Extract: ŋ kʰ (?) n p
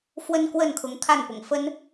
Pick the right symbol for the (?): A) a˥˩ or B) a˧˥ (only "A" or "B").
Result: A